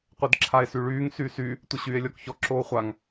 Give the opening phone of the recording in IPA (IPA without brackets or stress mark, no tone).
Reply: qʷ